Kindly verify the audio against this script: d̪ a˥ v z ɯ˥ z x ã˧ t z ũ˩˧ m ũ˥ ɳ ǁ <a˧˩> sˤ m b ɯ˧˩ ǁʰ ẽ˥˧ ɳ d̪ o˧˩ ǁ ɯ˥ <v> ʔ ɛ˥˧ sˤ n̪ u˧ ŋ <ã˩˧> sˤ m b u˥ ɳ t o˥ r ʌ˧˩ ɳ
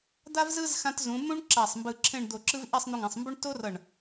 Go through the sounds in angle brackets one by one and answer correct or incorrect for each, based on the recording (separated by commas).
correct, correct, correct